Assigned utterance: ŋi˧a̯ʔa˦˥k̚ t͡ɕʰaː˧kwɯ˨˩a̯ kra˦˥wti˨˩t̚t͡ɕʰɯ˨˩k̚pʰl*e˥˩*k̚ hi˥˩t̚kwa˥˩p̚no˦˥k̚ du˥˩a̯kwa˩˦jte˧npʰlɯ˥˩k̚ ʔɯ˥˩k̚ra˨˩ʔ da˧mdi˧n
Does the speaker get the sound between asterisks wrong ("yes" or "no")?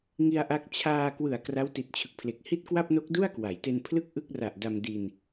yes